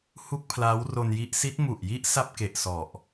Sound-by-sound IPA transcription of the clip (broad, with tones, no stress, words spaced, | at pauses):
hu˥˩k̚pʰlaː˦˥wro˧nji˦˥ʔ si˦˥t̚mu˨˩ʔji˥˩ʔ sa˥˩p̚ke˨˩ʔ sɔ˨˩ʔ